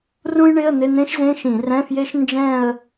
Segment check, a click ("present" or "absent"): absent